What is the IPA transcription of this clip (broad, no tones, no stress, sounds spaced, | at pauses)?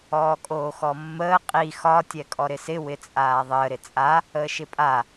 ɔː kʼ oː x ɔ mː əː qʼ i x ɒ tʲ ɛ kʼ ɔ ɾ ɪ s ɪ w ɪ t͡sʼ aː ðˤ əː ɾ ɪ t͡sʼ a | əː ʃ ɪ pʼ a